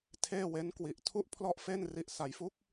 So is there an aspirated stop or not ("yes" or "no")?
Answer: yes